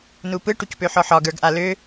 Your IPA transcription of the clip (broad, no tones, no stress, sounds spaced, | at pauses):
n u p ɯ ʈ u c p ø ħ ɔ ħ ɒ ɡ ə˞ ɡ ʔ a l ø